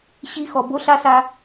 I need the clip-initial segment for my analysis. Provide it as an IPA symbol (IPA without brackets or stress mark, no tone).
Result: ɕ